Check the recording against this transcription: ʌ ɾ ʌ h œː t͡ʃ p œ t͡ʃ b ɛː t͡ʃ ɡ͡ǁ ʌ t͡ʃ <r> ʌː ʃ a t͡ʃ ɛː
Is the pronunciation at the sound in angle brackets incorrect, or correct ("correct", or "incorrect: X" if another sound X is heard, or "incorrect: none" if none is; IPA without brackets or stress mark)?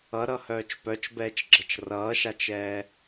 correct